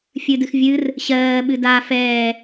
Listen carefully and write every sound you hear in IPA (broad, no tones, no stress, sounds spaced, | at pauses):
fʲ ɨ d ɨ x vʲ ɨ r | ɕ ɜː ɓ ɨ d a f ɛː